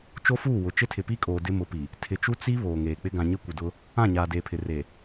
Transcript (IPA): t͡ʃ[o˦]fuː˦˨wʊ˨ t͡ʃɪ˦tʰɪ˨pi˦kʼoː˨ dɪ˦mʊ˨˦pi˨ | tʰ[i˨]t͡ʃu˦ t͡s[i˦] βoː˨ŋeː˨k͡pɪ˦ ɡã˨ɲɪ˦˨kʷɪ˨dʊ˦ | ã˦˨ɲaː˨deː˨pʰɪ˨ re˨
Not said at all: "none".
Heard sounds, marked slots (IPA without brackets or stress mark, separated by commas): o˦, ɪ˨, i˦